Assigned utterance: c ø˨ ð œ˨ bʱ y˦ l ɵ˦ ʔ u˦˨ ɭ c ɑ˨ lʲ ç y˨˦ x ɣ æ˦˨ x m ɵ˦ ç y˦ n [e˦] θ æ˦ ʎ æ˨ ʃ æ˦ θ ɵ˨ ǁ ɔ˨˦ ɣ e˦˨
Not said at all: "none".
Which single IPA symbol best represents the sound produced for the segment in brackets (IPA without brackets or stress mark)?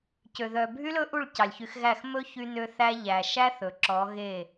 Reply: ø˦